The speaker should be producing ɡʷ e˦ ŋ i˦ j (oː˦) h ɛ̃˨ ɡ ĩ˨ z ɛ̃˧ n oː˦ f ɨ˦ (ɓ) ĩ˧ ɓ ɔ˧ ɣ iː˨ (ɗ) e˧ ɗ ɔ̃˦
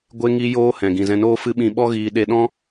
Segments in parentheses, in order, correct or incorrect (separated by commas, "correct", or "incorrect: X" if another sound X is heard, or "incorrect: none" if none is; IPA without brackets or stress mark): correct, correct, correct